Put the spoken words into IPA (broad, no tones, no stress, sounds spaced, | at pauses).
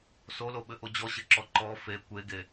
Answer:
s o l o ɓ ɘ ʔ o d͡ʑ ɔ ɕ ɘ ǁ ɔ ǃ ɔ f e kʷ e ɡ e